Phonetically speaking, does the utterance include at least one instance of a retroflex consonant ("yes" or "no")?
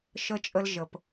no